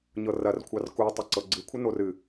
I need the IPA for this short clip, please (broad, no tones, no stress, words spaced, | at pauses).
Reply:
ɲɤrɐr kʷʰɑrku tˤəǀɤɡ͡ǀɨ kʷʰənorɨ